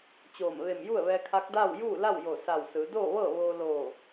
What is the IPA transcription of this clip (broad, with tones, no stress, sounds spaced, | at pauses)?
t͡ɕ oː˧˩ m ʋ e˧˩ m j u˥˨ ə̯ ʋ ɛː˧ kʰ a˧˥ k̚ d aː˥˨ w j uː˥˨ l a˥˨ w j o˧˩ s a˧˩ w s ɯː˩˧ d oː˥˨ ʋ ɤː˥˨ ʋ oː˧ l oː˧˩